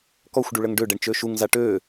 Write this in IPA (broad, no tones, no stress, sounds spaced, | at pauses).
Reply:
k ɔ xʷ ɖ u ɭ ə ŋ ɖ ø ɖ ɛ ɳ t͡ʃ ø ʃ u ŋ z a ʈ ø